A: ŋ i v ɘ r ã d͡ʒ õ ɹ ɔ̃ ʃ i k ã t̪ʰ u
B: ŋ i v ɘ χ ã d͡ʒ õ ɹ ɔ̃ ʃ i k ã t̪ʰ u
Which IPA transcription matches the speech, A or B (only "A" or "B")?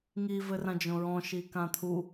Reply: A